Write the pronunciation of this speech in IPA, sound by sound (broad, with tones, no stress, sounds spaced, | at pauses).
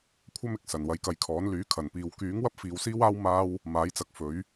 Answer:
kʷʰ ɐ˥ m ɪ˨˥ k̚ s ɐ˨˩ n w ɐ˧ j k ɐ˧ j kʰ ɔː˨˥ n l yː˨˥ kʰ ɐ˨˩ n p iː˨ w k yː˨˥ ŋ w ɐ˥ p̚ f iː˨˧ w s iː˥ w aː˥ w m aː˥ w | m aː˨˥ j t͡s ɐ˨ k̚ f ɵ˨˥ ɥ